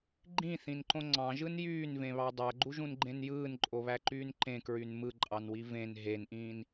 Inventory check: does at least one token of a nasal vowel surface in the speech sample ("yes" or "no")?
yes